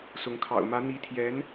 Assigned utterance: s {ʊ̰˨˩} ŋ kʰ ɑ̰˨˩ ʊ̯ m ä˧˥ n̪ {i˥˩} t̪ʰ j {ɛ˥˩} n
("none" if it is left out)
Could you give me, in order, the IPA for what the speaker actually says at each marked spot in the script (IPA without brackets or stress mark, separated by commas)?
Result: ʊ˧˥, i˧˥, ɛ˧˥